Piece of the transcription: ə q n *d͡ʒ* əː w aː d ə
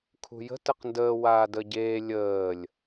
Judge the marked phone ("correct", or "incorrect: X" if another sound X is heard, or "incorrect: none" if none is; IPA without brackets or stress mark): incorrect: d